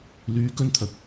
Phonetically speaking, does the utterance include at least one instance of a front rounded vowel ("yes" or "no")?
yes